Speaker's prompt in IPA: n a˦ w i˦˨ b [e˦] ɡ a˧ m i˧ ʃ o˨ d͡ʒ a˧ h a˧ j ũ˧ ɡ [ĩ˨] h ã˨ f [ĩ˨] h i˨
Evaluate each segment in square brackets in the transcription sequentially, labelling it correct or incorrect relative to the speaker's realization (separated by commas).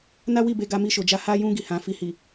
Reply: incorrect, incorrect, incorrect